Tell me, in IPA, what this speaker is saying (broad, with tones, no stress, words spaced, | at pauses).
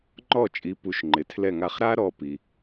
ŋ͡ǃɔ˥˩t͡ʃʼi˩˥pu˩˥ʃ ŋ͡ǃɪ˩tʰlɛ˥˩ŋa˥˩χ ɾa˥ ɾɔ˧pi˩